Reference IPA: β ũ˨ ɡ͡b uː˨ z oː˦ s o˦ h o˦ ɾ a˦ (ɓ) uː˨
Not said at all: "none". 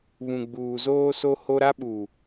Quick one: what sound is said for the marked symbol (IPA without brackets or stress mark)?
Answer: ɓ